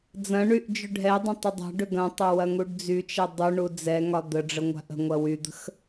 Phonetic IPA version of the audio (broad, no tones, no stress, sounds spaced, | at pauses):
d͡z ɐ̃ ɳ y ʔ d͡ʒ ʏ ɖʱ ɛ dˤ ə̃ tˤ ə dˤ a̤ ɖ ʏ ɡ ɐ̃ tˤ ɐ w ɐ ŋ u ɖ d͡z y t͡ʃ ɛ dˤ u ɳ u d͡z ɛ ŋ ɒ d̪ ə ɖ͡ʐ ə ŋʷ a̤ ʔ ə̤ ŋʷ ɐ w y d̪ ə̤ x